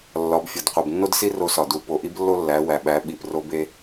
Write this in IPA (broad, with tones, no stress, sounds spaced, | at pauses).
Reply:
lː ɒ˩˧ b fʲ ɒ˩ d qʷ e˩ b nː o˥ d s i˥ r o˧ s ɒ˩ d u˩˧ p o˩˧ ʔ i˧˥ b lː o˥ lː æ˩˧ w æ˩ ɓ æ˩˧ ɓ i˩ p r o˧ b e˧